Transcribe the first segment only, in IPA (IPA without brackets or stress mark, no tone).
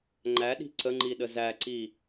ŋ͡ǃ